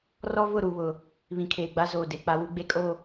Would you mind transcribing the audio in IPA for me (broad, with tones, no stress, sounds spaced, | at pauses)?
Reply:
r ɔ˦ v ʊ˦˨ ɾ u˨ β ʊ˨ | β ĩ˨ kʰ eː˨ ɡ͡b a˦ z oː˨ d e˨ k͡p a˨ w u˨ ɡ͡b e˨ kʼ o˨